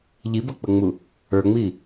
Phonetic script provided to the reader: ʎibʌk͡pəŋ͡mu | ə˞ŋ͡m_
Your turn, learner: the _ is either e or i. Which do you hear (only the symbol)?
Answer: i